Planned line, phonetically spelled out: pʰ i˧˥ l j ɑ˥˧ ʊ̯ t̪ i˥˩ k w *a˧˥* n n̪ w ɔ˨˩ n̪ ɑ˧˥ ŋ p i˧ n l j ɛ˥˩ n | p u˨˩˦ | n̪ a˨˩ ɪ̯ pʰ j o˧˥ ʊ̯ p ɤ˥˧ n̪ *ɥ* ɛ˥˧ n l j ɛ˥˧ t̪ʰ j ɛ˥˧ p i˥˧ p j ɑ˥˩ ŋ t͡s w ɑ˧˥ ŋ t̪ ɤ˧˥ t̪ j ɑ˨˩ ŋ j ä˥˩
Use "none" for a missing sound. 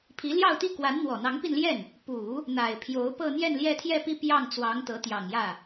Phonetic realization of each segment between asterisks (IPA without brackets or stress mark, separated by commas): a˧˥, j